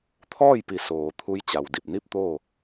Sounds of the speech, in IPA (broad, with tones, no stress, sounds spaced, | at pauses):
t̪ʰ ɔː˥˨ j p i˩˧ s oː˩ t̪ʰ u˧˥ j t͡ɕ a˩ w d i˧˩ p̚ n i˥˨ p̚ t̪ oː˥˨